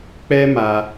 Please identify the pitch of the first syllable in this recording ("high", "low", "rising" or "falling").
high